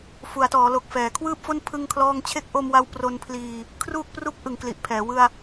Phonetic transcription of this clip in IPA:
f u˩˦ a̯ t ɔː˩˦ l o˨˩ k̚ f ɛː˩˦ kʰ w ɯː˥˩ p̚ f o˥˩ n pʰ ɯ˥˩ ŋ kʰ l ɔː˥˩ ŋ t͡ɕʰ e˦˥ k̚ ʔ o˧ m w a˧ w p r o˧ n pʰ l iː˧ | kʰ r uː˥˩ k̚ p r u˥˩ k̚ ʔ ɯ˨˩ ŋ k l i˨˩ ʔ pʰ ɛː˩˦ w ɯ˧ a̯

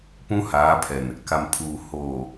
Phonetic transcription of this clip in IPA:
p ũ˦ h aː˨˦ pʰ ɛ˨ n | k a˨ m pʰ uː˨ h oː˨

